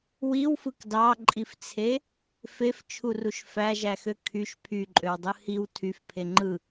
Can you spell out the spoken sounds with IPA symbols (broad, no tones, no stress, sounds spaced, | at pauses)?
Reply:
w i w f ɯ k d ɑ ǃʼ i f t͡sʰ e | f e f t͡ʃʰ u r u ʃ f æ ʒ æ x ø kʰ y ʃ pʰ y ǃʼ ø w dˤ ɯ h i w tʰ y f pʰ e ŋ͡ǃ ɯ